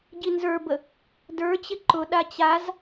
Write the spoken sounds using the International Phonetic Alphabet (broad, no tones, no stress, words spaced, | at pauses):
ɟinzə˞bə | də˞ t͡ɕɪǃʊ ɗat͡ɕaz